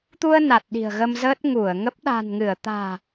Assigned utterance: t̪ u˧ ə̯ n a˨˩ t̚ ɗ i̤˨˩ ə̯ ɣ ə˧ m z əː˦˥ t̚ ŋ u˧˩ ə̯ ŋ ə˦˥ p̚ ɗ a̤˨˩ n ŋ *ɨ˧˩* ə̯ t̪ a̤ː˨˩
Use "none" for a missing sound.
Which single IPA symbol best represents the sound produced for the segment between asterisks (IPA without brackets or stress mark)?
ɨ˧˩